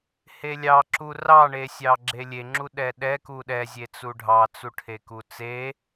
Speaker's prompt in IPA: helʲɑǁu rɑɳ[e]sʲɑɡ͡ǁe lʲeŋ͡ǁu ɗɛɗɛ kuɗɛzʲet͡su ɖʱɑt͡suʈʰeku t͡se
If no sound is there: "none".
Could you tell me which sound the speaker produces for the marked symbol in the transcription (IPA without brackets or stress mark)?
e